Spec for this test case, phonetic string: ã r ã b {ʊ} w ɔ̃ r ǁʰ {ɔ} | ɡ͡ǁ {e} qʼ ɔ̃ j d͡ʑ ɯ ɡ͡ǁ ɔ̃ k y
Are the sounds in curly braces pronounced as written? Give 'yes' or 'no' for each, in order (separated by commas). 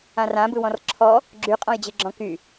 no, yes, no